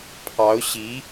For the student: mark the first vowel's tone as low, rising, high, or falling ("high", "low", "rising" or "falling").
rising